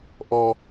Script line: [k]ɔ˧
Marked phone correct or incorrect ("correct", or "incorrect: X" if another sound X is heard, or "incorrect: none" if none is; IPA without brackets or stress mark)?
incorrect: ʔ